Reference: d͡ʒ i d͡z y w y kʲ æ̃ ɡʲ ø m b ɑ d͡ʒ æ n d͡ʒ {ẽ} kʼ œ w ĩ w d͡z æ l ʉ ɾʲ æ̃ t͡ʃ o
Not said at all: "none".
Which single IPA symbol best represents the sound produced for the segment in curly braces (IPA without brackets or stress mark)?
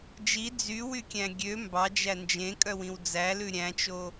ẽ